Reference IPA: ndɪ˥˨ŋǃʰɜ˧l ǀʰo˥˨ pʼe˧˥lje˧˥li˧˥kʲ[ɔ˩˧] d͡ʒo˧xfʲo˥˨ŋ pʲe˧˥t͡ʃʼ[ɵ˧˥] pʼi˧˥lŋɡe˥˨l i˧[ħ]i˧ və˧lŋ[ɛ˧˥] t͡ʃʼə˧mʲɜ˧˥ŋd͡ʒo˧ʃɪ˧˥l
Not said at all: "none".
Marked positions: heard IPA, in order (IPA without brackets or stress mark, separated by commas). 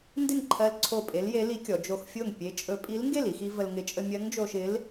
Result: ɔ˩˧, ɵ˧˥, x, ɪ˧˥